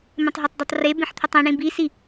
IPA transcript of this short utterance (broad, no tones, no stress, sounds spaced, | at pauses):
m ẽ tˤ ɦ ɛ tˤ d ə˞ tˤ r e b ẽ ħ t̪ʰ ɵ tˤ ĩ ɳ ĩ b i s i